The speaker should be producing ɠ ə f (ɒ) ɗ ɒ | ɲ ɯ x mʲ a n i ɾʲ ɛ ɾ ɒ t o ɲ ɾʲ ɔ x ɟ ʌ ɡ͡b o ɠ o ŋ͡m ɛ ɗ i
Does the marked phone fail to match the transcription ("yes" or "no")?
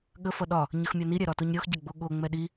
yes